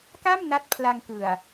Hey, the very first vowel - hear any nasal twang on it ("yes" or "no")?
no